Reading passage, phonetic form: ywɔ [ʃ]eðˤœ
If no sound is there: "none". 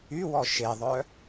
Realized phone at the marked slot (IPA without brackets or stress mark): ʃ